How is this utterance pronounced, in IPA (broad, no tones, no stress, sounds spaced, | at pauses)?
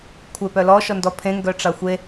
kʷʰ e p œ l ɔ ʃ ɔ n d ɔ pʰ ẽ ŋ ɡ œ ʈ͡ʂ ɑ xʷ e